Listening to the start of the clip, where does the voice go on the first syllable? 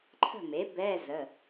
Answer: falling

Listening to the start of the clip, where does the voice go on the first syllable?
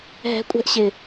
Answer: rising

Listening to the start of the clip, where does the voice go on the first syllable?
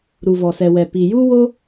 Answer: low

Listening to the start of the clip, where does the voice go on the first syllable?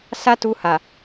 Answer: high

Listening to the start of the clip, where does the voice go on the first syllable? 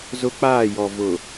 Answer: high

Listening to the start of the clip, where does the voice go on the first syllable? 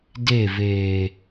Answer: falling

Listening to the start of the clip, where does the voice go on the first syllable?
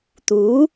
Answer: rising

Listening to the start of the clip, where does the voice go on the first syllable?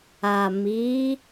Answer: low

